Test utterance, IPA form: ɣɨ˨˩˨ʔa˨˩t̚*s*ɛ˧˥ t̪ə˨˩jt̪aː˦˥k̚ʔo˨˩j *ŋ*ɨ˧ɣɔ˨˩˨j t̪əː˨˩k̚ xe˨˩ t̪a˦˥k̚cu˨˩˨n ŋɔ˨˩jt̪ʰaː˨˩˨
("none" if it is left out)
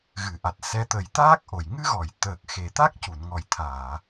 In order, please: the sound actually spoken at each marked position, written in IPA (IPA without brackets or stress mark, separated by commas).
s, ŋ